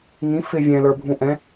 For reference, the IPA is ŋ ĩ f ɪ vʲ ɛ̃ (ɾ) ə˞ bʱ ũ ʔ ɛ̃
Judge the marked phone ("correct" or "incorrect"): incorrect